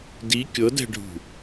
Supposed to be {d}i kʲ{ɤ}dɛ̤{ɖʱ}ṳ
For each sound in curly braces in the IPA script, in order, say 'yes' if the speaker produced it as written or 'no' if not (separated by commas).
yes, yes, yes